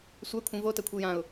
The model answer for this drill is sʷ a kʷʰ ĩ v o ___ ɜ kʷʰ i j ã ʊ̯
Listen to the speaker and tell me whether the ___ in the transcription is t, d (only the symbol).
t